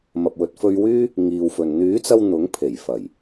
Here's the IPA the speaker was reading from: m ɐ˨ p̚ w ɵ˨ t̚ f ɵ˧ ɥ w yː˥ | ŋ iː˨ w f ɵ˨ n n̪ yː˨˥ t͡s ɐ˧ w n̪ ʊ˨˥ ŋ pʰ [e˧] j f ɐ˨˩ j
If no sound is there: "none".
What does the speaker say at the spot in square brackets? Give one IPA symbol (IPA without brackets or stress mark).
e˨˩